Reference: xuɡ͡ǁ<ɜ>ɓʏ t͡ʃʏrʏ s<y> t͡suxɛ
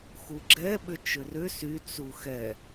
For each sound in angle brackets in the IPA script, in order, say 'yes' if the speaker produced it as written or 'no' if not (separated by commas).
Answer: no, yes